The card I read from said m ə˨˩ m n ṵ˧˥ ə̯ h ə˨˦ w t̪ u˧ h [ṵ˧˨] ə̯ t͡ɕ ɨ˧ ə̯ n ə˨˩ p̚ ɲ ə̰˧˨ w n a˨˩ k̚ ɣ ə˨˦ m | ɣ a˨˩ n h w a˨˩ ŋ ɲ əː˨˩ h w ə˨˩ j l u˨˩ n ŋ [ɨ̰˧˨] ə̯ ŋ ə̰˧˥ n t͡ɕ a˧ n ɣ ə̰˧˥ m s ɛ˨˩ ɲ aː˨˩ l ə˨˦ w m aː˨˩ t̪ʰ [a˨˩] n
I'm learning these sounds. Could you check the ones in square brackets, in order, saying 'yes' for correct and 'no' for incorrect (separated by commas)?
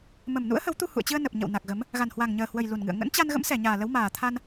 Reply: yes, yes, no